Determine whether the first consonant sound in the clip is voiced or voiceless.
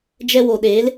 voiced